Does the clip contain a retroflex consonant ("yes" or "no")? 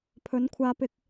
no